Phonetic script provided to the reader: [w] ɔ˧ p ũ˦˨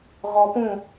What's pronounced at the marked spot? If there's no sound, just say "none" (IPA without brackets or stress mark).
ɣ